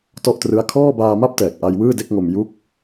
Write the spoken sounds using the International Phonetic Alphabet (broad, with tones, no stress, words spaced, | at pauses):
tɔ˥˩ʔtrɯ˦˥a̯ kʰɔː˥˩ baː˧ ma˥˩p̚tɛː˨˩k̚ʔa˧j wɯː˥˩de˥˩k̚ŋo˧m ju˦˥k̚